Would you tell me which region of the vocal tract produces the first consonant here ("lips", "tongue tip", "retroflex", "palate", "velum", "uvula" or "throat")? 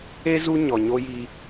tongue tip